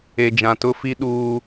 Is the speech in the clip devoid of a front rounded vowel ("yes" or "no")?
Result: yes